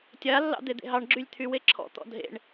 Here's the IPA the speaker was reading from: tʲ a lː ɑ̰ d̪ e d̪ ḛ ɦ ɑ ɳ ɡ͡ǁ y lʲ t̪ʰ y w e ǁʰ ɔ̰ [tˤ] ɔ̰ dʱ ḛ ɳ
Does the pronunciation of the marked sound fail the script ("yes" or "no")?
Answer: yes